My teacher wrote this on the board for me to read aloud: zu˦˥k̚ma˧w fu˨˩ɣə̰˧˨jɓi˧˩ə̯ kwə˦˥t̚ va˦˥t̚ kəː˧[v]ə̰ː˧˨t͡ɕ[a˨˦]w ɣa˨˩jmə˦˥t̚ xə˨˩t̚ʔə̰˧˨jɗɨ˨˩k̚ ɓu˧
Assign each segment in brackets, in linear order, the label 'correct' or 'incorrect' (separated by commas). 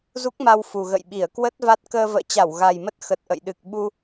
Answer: correct, incorrect